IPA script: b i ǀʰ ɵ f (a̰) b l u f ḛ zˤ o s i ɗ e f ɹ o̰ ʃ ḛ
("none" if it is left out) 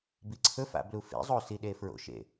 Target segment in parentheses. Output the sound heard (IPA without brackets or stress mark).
a̰